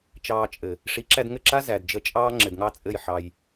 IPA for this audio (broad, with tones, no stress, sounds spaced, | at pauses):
t͡ʃ ɑː˧ t͡ʃʼ ɘ˨ | ʂ i˨˦ ǁ æ˧ d ŋ ɘ˦˨ ǁ a˦ z æ˨ d d͡ʒ ə˦˨ t͡ʃʼ ɑː˦ ŋ͡ǁ ɘ˨ d ŋ ɑ˦ t͡sʼ ɘ˦˨ j ħ ɑ˧ j